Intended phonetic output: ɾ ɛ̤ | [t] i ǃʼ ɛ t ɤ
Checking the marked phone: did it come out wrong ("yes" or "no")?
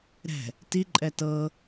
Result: no